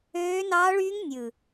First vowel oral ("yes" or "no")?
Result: yes